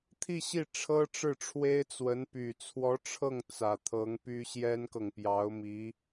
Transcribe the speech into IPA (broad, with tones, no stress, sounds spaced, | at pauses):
t̪ʰ i˥˧ ɕ i˥˩ ʈ͡ʂʰ ɤ˥ ʈ͡ʂ ɻ̩˥˩ ʈ͡ʂʰ w e˥ ɪ̯ t͡s w ə˧˥ n p y˨˩ t͡sʰ w ɔ˧˥ ʈ͡ʂʰ ɤ˥˩ ŋ t͡s ä˨˩ t̪ʰ ɤ˧˥ ŋ p y˥ ɕ j ɛ˥ n k ɤ˨ ŋ p j ɑ˧˥ ʊ̯ m i˧˥